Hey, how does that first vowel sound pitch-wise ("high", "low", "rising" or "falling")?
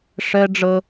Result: high